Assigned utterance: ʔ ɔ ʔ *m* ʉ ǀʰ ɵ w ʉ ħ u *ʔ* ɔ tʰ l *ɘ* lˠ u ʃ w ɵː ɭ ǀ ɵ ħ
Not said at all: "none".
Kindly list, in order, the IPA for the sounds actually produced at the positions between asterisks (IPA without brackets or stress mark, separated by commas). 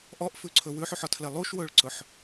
f, ħ, e